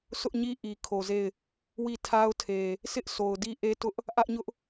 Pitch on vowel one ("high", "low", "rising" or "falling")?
high